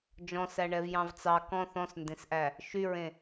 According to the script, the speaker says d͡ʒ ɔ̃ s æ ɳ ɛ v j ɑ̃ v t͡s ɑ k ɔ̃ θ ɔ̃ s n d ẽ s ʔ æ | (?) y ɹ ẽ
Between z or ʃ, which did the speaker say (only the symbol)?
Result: ʃ